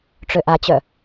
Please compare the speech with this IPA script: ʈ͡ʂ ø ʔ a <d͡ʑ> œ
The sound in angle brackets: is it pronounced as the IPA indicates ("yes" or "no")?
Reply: no